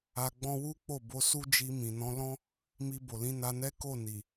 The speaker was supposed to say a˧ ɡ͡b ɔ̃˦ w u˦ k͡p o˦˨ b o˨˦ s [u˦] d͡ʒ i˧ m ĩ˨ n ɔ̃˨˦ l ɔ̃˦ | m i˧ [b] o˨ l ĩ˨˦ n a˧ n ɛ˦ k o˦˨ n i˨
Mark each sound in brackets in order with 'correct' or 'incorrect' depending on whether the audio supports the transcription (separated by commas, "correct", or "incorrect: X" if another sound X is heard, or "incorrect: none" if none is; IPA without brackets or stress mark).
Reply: correct, correct